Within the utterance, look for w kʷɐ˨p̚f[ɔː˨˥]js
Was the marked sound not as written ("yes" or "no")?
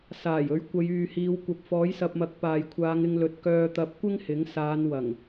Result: no